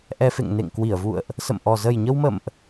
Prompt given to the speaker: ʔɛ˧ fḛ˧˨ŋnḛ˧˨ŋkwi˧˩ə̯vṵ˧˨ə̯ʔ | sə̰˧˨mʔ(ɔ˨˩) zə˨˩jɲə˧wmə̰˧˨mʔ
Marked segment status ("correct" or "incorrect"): correct